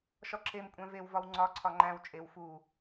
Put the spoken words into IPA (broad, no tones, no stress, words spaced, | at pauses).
ʃɒǁem kʷʼæ̃vewvɒw ŋ͡ǀɒ ǀʰɒŋ͡ǃæ̃w t͡ʃʼew fu